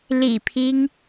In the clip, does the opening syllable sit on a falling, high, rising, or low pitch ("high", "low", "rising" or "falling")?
low